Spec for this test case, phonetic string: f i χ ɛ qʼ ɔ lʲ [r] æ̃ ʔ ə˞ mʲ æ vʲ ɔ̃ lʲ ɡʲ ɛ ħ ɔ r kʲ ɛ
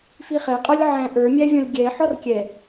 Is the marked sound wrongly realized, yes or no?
yes